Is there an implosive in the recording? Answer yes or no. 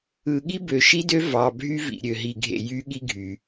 yes